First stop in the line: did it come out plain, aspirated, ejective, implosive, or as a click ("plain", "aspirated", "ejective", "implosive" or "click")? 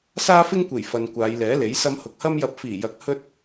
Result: plain